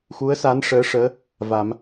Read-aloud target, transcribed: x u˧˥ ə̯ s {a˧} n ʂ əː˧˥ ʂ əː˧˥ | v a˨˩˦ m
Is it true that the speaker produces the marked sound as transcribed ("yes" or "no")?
no